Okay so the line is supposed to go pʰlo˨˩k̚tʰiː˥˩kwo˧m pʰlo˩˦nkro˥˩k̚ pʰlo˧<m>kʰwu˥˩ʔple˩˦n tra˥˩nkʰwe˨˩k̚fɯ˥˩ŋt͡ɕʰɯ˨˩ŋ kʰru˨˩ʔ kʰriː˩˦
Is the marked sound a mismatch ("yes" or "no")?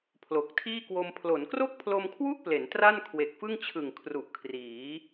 no